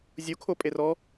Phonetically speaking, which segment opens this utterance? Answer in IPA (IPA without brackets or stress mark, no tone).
zʲ